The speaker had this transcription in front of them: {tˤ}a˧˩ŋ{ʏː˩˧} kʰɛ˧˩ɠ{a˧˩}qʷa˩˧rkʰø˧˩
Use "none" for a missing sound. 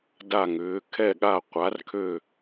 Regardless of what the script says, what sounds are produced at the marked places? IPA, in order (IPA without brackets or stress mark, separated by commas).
d, ʏː˩˧, a˧˩